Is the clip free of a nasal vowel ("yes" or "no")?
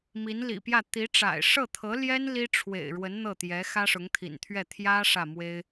yes